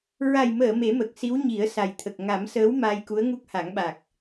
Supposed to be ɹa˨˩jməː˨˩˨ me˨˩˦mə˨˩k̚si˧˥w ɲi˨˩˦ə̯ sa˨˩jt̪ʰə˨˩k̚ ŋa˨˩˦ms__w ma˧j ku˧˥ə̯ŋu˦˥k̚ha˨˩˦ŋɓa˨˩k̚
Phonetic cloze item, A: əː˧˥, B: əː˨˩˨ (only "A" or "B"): A